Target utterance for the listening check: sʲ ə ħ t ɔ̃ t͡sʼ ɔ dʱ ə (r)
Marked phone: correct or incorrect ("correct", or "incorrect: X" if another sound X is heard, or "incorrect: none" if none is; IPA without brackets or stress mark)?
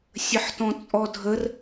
correct